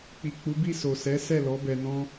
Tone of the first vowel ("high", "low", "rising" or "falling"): low